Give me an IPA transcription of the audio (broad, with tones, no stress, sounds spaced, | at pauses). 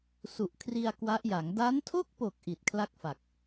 s u˨˩ ʔ kʰ r i˧ a̯ k w a˦˥ ʔ j a˩˦ ŋ d a˦˥ n tʰ o˥˩ k̚ p o˨˩ k̚ ʔ i˨˩ t̚ kʰ l a˥˩ k̚ f a˨˩ k̚